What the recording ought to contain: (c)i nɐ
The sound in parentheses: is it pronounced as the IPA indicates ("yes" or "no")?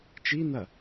no